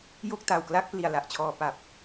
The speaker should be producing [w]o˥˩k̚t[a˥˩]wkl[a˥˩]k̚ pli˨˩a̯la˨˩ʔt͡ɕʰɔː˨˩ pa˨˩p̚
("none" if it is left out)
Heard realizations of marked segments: j, a˨˩, a˦˥

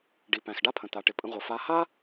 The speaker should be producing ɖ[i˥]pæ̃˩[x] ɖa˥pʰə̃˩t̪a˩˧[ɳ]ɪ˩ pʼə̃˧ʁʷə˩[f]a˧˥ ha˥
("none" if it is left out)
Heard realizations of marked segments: i˩, x, ʈ, f

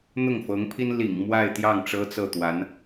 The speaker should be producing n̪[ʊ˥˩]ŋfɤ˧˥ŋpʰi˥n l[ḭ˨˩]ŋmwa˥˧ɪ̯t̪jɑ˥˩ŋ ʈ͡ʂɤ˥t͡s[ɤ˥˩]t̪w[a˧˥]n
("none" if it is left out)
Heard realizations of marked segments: ʊ˥˩, ḭ˨˩, ɤ˥˩, a˧˥

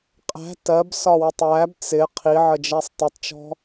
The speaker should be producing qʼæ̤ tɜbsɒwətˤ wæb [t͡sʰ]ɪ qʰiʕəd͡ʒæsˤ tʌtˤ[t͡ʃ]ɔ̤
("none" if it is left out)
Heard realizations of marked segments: t͡s, t͡ʃ

